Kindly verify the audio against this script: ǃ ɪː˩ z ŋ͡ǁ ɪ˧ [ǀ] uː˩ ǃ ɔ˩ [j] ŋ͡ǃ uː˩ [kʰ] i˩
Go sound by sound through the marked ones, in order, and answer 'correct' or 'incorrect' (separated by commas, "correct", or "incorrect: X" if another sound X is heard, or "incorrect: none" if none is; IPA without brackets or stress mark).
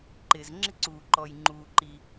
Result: correct, correct, incorrect: ǃ